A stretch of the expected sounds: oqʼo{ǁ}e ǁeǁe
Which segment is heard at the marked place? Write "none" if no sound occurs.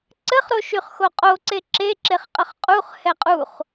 ǀ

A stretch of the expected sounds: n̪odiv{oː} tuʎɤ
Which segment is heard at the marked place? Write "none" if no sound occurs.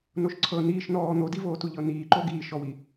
oː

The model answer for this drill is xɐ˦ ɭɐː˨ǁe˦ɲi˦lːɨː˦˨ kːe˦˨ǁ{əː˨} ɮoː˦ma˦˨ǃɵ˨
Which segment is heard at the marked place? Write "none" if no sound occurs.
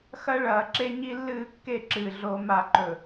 ɨː˨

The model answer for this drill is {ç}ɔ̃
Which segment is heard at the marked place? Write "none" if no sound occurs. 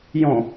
j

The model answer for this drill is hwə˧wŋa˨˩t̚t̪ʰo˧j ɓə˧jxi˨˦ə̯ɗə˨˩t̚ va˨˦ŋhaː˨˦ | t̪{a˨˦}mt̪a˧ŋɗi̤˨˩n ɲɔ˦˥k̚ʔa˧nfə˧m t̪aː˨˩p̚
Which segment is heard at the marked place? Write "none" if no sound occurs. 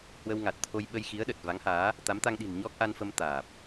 a˨˦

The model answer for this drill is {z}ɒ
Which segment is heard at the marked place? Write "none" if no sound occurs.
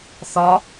θ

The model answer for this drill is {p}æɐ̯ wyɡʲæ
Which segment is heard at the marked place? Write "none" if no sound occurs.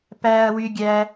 p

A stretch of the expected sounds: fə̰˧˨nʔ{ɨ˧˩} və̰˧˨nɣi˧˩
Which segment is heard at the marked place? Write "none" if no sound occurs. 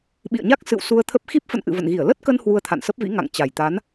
ɨ̰˧˨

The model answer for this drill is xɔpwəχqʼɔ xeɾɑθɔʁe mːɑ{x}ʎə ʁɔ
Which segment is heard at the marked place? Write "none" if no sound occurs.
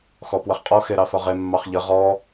χ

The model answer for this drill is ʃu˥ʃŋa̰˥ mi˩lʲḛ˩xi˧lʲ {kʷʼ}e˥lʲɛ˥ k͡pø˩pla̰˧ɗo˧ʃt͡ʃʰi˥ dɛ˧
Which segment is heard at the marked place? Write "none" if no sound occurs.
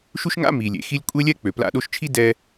kʷʼ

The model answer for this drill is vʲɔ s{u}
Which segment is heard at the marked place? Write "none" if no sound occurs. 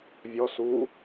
u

